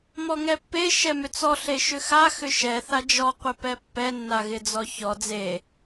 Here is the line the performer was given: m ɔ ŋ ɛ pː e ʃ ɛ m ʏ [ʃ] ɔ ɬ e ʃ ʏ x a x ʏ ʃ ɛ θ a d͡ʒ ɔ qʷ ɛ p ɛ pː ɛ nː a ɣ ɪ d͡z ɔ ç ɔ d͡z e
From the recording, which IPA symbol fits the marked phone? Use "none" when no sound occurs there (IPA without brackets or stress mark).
t͡s